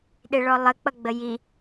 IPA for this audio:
ɗeɭɔlˠə k͡pʌɡ͡bəji

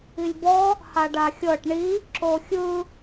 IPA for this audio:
ilʲbɔ | haɖaxʲɤʈ ɳi | ǁoxʲɯ

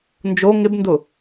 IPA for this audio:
nd͡ʒo ŋɪbndʊ

